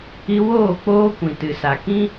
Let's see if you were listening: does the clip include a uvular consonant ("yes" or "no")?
no